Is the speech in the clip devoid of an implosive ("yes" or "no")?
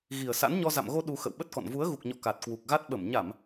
no